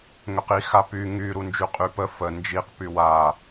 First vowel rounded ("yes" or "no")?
yes